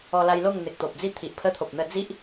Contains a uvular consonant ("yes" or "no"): no